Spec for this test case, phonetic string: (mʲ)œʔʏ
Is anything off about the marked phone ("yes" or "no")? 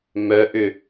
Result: yes